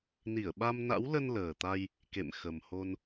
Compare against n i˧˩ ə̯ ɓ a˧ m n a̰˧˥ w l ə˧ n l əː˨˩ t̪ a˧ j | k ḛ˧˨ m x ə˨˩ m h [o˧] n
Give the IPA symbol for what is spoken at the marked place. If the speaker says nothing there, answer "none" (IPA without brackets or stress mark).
o˧